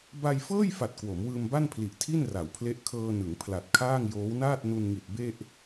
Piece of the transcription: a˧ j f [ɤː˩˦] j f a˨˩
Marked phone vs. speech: incorrect: ɤː˥˩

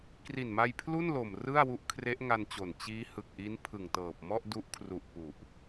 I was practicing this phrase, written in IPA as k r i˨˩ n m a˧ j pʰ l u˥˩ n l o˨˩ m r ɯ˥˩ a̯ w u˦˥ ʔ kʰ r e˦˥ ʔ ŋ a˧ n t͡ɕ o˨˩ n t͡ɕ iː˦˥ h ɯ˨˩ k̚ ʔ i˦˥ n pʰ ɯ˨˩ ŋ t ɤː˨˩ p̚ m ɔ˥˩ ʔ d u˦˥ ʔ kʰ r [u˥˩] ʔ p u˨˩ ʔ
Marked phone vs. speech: incorrect: u˨˩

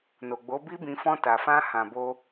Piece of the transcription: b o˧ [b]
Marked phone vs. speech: incorrect: none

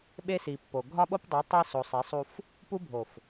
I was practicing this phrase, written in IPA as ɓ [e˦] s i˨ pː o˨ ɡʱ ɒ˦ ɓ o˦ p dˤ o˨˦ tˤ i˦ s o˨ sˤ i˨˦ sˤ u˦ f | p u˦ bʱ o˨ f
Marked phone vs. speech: correct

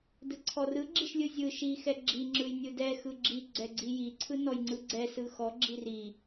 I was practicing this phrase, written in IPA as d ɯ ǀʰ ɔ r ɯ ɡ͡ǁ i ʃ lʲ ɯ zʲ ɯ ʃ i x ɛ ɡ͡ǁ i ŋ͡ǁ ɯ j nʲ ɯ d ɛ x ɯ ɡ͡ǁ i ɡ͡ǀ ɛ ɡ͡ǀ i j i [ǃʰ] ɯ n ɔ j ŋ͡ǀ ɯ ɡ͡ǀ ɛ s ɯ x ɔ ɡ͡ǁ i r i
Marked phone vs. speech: incorrect: ǀʰ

